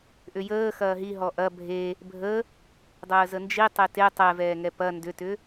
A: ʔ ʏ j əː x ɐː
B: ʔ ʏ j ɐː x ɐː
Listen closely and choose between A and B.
A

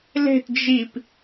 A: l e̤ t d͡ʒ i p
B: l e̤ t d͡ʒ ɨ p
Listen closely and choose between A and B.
A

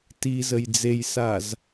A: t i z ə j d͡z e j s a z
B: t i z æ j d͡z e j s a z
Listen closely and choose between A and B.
A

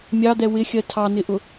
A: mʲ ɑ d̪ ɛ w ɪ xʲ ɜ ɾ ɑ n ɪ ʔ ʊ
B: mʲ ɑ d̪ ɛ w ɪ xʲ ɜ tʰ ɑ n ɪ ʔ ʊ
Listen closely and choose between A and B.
B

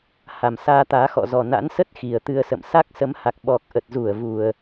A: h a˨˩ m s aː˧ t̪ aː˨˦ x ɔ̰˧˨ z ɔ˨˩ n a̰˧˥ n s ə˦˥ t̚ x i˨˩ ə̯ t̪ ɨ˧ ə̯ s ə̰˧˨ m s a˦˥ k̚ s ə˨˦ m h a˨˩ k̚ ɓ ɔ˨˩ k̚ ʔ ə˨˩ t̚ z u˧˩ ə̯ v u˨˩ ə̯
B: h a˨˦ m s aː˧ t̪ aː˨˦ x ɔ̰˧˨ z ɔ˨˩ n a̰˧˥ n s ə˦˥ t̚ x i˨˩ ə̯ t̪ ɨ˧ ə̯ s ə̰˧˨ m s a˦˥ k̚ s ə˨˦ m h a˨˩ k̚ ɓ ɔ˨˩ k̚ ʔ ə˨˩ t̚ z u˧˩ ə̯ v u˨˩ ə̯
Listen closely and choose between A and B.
A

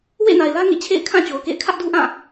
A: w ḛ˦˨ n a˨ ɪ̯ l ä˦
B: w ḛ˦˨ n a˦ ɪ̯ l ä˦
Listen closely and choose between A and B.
A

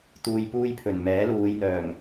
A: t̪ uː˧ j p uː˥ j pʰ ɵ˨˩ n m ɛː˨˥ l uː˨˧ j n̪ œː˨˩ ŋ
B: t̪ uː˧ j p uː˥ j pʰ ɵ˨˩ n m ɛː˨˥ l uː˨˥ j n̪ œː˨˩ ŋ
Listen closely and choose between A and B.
A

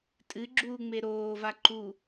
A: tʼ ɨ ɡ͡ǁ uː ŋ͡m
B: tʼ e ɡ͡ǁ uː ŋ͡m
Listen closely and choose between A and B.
A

